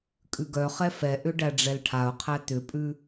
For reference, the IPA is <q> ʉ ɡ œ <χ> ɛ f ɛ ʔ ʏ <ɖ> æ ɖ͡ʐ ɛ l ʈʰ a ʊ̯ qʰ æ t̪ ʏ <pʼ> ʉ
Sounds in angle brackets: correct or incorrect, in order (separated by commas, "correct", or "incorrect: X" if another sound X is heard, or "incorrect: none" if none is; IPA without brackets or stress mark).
incorrect: kʼ, correct, correct, correct